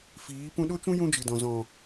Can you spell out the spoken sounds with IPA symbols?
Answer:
f iː˨˦ p ũ˧ ɗ o˦ t͡ʃ ũ˦ j ũ˦ d͡ʒ ɨ˨ d ɔ̃˨ z ɔ̃˨

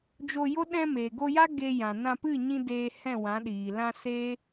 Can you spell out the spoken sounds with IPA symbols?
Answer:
d͡ʒ o˧ j o˦ ɗ ɛ̃˧ m eː˨ ɡ o˧ j a˦ ɡ e˧ j ã˨ n ã˧ p ɨ˦˨ ɲ ĩ˧ d eː˧ h ɛ̃˦˨ w ã˨˦ ɗ iː˨ l ã˧ s eː˦

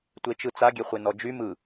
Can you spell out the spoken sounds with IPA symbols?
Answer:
tʷ e t͡ʃ ɯ t͡s a ɡʲ e χʷ e n ɔ d͡ʒ y m ɯ

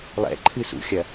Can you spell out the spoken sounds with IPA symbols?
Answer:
lˠ ɛ̰ ǃʰ ɨ s ṵ xʲ ɐ

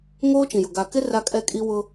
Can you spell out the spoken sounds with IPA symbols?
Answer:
ŋ oː˦ t͡ʃ ĩ˨ j ʊ˨ ɡ a˨ k ɪ˦ r a˦ kʼ ɛ˦ kʼ i˦ w ʊ˦

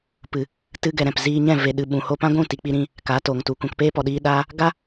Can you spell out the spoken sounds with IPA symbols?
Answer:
p ɨ˨ | t ɨ˦ ɡ ɛ˧ ɾ ɛ̃˨ p z iː˧ ɲ ɛ̃˦˨ v e˨ ɗ ɨ˨ ɓ ũ˨ h o˧ p ã˦ ɡʷ ũ˦˨ t i˧ k͡p i˦ ɾ ĩ˦ | k a˨˦ t o˨ ŋ t u˨ kʷ ã˧ k p eː˦ p ɔ˧ ɗ iː˦ ɗ aː˦ | ɡ a˦

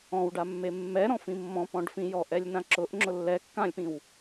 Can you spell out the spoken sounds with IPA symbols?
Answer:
ɔ̃ w ɖ a mː e mː ɛ ɾ ɔ̃ f ĩ mː ɔ̃ p ɔ̃ ɖ f ĩ j ɔ ʔ ɛ lʲ n ã ǁ ʊ ʔ ŋ͡ǁ ʊ lː ɛ kː ã lʲ p ĩ w

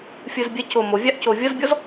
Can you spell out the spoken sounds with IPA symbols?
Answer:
fʲ ɯ z bʲ ɛ c o m o vʲ a ʔ c o vʲ ɤ z bʲ ɔ z

